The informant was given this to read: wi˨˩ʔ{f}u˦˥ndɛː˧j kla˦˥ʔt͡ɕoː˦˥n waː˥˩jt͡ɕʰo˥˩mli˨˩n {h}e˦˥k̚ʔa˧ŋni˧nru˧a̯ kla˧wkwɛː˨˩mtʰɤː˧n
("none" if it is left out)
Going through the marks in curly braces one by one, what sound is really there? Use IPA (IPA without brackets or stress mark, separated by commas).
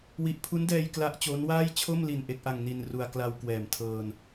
pʰ, ʔ